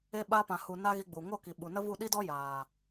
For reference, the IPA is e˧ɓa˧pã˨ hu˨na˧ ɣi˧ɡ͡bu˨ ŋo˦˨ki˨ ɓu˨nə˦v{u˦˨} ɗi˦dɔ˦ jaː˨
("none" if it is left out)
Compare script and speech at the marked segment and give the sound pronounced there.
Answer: u˦˨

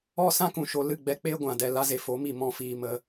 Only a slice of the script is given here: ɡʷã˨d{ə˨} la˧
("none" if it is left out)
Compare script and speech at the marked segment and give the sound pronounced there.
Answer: ɛ˨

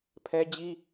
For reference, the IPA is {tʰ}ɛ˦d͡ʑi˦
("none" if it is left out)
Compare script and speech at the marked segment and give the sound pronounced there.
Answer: pʰ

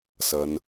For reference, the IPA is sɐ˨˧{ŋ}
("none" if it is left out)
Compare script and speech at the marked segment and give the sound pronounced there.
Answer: n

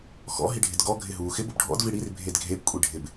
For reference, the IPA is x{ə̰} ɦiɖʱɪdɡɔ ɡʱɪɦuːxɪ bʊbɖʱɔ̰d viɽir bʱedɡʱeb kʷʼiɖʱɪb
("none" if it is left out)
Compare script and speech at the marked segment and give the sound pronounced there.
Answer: ɔ̰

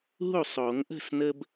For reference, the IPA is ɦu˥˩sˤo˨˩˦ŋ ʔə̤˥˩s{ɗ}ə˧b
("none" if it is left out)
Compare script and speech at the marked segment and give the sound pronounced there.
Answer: n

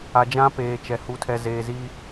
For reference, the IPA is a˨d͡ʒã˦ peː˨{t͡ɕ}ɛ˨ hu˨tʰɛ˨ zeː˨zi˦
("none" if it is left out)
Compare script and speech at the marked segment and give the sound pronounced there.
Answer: t͡ʃ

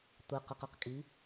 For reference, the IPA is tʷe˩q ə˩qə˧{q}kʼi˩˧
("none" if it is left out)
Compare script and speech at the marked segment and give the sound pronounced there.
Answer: q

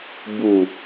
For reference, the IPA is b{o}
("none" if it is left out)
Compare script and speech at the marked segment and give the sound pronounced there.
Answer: u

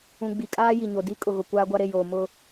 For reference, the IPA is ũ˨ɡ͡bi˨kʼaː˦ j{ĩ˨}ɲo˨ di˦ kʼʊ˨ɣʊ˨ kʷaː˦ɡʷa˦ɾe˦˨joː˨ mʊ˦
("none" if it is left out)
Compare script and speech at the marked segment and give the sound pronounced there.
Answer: i˨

